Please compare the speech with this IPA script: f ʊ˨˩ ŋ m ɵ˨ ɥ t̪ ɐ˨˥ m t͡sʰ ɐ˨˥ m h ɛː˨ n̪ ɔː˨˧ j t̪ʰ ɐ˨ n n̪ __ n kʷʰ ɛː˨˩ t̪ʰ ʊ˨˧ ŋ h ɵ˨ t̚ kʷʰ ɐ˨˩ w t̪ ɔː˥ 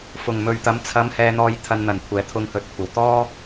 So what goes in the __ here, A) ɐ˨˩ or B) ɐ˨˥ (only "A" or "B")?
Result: A